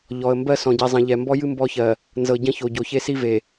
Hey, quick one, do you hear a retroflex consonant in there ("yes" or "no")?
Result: no